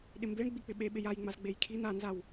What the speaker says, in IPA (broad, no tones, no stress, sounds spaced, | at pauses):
ɗ ɪ m b e ɳ ɡ͡b i k͡p ɪ ɓ e ɓ ɪ j a j ŋ͡m a z ɡ͡b e j kʰ i n̪ a n z a w